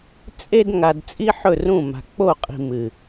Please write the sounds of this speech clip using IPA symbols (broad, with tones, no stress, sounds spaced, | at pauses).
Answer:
t͡sʼ e˧ d ŋ a˨ d t͡sʼ i˦ ħ ɵ˦˨ r ũ˦˨ m a̤˨ k͡p o˦˨ qʼ i̤˨ m ɨ˨